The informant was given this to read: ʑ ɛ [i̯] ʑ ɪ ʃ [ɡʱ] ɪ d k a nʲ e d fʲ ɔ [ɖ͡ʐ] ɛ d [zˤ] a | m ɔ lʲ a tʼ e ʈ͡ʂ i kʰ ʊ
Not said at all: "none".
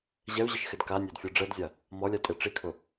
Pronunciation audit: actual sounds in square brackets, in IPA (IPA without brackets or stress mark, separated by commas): u̯, x, ɖ͡ʐ, zʲ